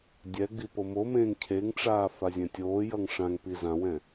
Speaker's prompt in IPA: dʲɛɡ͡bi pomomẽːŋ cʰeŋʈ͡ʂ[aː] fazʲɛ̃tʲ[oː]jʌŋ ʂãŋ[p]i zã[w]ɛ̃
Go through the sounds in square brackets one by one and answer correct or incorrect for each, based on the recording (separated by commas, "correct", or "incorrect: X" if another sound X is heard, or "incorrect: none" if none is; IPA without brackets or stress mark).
correct, correct, correct, correct